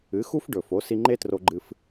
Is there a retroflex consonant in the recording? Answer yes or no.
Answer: yes